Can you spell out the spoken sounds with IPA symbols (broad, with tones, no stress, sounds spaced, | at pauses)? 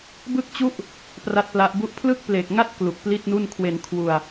b ɯ˥˩ k̚ t͡ɕ u˥˩ ʔ | p r a˦˥ t̚ p l a˦˥ ʔ b u˥˩ ʔ pʰ l ɯ˥˩ k̚ p l e˨˩ k̚ ŋ a˥˩ t̚ k l u˨˩ k̚ p l i˥˩ t̚ n u˥˩ n kʰ w e˧ n kʰ w u˧ a̯